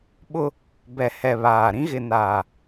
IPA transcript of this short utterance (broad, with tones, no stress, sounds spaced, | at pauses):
ɓ ʊ˦ | b ɛ˨ h ɛ˨ β aː˨ ɾ ĩ˦ ɣ ɪ˨ n aː˨